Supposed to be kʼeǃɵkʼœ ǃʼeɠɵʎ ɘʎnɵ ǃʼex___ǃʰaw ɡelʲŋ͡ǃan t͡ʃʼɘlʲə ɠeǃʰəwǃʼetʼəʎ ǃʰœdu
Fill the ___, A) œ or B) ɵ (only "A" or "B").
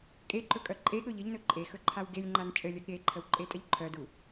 B